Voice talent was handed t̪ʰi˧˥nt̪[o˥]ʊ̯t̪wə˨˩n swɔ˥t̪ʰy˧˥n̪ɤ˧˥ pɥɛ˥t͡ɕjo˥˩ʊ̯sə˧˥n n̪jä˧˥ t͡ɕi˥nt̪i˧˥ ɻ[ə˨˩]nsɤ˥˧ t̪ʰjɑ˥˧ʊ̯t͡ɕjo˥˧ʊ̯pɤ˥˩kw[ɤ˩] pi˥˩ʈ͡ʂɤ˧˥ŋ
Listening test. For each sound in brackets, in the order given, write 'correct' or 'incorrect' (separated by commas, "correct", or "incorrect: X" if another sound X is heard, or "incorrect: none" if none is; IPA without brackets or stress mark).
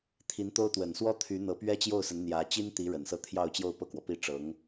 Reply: correct, correct, incorrect: ɔ˩